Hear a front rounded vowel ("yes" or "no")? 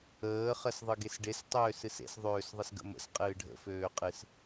yes